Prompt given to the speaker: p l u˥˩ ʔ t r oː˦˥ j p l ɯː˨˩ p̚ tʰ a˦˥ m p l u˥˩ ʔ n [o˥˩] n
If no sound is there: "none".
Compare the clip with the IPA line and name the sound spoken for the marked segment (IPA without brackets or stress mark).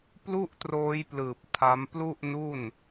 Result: u˥˩